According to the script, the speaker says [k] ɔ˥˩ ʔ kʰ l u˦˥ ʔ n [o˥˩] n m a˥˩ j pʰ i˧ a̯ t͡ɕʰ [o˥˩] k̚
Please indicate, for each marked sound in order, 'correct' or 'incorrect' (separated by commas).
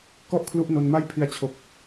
correct, incorrect, incorrect